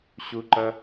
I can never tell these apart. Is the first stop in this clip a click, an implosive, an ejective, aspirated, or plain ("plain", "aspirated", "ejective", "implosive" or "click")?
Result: click